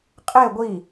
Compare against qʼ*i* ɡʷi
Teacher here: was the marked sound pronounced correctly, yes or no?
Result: no